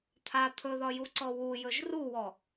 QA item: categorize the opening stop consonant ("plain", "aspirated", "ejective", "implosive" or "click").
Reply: aspirated